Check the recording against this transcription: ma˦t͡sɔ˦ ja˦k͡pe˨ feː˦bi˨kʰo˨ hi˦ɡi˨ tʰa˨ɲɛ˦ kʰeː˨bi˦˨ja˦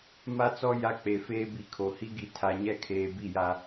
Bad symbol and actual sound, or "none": none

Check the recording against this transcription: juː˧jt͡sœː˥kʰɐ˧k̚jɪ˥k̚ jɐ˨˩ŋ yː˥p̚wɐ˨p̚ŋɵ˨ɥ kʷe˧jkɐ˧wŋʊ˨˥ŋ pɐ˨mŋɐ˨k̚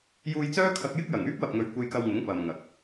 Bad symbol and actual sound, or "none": none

